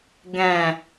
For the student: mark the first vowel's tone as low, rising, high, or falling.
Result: low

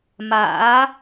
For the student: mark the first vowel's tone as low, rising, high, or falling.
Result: rising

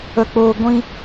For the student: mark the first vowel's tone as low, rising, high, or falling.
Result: low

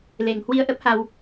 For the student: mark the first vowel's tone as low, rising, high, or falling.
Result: low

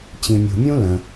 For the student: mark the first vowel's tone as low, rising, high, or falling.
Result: low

